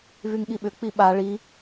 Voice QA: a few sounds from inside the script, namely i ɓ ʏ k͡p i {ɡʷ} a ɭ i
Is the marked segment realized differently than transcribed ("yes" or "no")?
yes